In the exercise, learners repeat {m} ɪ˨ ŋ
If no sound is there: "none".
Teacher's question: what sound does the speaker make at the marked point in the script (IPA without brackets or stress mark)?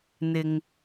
n̪